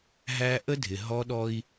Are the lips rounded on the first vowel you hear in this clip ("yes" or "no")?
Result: no